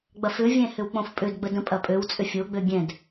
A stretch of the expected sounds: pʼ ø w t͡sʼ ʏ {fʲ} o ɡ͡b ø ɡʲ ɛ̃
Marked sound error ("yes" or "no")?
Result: no